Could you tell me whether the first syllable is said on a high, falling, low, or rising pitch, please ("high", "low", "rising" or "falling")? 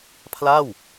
falling